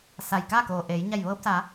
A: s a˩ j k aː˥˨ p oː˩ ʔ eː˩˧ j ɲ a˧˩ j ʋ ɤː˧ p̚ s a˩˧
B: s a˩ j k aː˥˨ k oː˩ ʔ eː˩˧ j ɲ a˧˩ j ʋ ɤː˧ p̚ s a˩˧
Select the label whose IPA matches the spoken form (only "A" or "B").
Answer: B